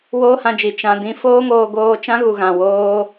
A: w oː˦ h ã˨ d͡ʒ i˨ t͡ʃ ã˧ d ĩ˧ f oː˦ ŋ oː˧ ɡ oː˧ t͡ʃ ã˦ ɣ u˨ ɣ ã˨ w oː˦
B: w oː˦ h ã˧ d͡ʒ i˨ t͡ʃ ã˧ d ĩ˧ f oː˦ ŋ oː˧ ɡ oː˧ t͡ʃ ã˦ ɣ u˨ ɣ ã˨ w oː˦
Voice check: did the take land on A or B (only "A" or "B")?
B